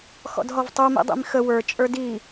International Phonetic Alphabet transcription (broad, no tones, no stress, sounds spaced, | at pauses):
x ɔ̰ d ɦ ɔ v tˤ u m ḭ dˤ ḭ m x ə w ə˞ t͡ʃʼ ə˞ d i